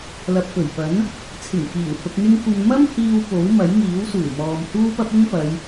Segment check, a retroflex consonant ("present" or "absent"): absent